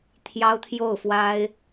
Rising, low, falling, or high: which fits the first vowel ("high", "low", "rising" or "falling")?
high